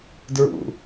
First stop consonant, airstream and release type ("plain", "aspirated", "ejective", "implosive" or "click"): plain